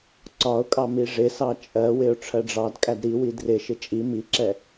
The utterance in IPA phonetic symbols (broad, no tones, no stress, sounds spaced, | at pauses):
ǀ ɒ ʊ̯ kʼ ɑ m i ʐ ɪ s ɑ t͡ʃʼ ɜ w ɪ ʊ̯ ʈ͡ʂʰ ɜ ɖ͡ʐ ɑ d kʼ æ d ɾ i w i d r ɪ ʃ ɪ t͡ʃʼ i m i ǁ ɛ